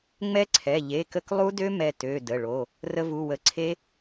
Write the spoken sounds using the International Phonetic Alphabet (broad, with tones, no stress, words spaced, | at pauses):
ŋ͡mɛ˦˥ǀʰɛ˩˧˩ ʎe˩˧˩kə˧klˠu˦˥dø˦˥ mɛ˧tø˩˧˩ də˩˧˩ɭo˩˧˩ | rə˧vu˩˧˩wə˩˧˩ǀʰe˦˥